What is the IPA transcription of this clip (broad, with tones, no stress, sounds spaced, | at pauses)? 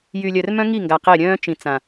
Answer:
j y˨ lʲ œ˨ r m œ̃˦ ŋ i˦˨ ŋ ɡ a˨ q e˦˨ ɾʲ œ̃ː˦ t͡ʃ ĩ˨ t͡s ã˨